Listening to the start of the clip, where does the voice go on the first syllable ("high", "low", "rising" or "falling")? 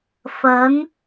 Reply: rising